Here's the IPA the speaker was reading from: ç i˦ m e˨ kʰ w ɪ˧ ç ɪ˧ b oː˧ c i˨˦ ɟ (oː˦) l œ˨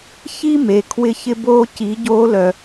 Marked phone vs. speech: incorrect: oː˧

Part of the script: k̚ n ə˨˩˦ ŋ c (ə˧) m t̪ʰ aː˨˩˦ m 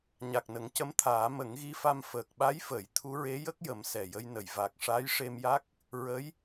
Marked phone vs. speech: incorrect: ə˧˥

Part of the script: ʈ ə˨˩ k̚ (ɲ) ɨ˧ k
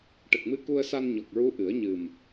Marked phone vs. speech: incorrect: m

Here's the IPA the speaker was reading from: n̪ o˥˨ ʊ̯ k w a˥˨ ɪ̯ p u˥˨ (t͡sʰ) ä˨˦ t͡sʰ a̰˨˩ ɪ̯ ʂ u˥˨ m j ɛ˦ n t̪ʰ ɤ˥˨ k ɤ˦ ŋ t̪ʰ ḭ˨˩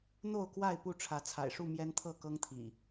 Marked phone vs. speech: incorrect: ʈ͡ʂʰ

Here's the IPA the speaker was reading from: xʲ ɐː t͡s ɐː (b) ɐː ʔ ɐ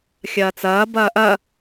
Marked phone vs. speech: correct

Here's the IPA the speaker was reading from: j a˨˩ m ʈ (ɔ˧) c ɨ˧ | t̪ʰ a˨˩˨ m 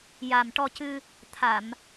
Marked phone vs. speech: correct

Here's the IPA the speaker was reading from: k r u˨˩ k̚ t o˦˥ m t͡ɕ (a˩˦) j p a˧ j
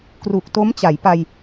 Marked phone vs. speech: correct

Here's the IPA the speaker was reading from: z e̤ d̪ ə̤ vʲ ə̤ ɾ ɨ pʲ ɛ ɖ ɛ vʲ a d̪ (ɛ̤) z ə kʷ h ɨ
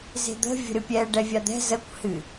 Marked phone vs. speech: correct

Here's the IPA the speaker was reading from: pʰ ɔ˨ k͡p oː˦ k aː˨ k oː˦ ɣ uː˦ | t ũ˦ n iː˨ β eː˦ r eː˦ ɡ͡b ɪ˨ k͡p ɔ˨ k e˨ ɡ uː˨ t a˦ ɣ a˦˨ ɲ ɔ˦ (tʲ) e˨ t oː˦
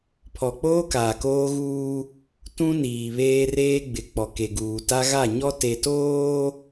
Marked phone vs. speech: incorrect: t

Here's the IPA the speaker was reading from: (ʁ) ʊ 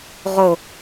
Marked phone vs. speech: correct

